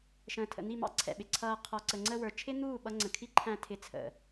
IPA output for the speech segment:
ʃ ə̃ː˨ tʰ ə̰˨ n̪ i˦˨ m ɑ̰˦ ǀʰ ɛ̰˨ ɓ ɪ˨ ǀʰ ʌː˧ qʰ ɔ˨ ǀ ə˨ ŋ͡ǀ ə˧ w ə˞˨ t͡ʃʰ ɪ˦ n̪ uː˦˨ ɓ ʌ˧ ŋ͡ǀ ə̃˨ kʰ i˦ ǃʰ æ̃˧ tʰ ɪ˨˦ t͡sʰ ə̰˨

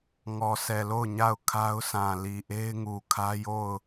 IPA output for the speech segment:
ŋ ɔ˨ s ɛ˨ l o˦˨ ʊ̯ ɲ a˦˨ ʊ̯ kʰ a˦ ʊ̯ s ã˨ l i˨ ʔ e˦ ɪ̯ ŋ u˨ kʰ ä˦ j o˦˨ ʊ̯

